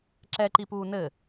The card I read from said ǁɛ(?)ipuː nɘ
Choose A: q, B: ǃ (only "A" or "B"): B